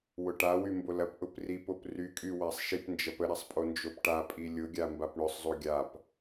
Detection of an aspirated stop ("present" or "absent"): absent